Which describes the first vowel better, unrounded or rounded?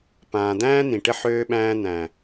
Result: unrounded